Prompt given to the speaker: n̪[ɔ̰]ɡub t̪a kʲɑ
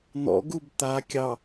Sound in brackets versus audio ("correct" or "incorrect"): correct